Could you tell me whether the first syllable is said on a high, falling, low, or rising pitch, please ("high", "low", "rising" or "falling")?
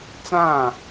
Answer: falling